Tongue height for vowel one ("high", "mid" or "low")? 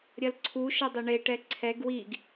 low